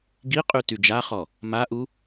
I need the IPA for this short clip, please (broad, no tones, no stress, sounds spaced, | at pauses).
ɡ i qʼ y t y d͡ʒ a χ ɔ | m a ʔ u